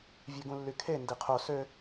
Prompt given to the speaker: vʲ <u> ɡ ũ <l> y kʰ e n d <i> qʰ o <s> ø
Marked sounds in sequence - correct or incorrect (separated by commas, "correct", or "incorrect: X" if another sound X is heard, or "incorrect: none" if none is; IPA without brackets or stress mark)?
incorrect: ø, incorrect: lː, correct, correct